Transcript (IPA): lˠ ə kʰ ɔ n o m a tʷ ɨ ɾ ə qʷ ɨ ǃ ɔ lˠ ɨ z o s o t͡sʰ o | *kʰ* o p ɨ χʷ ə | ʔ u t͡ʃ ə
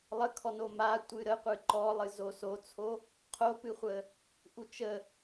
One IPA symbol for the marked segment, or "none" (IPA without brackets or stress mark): qʰ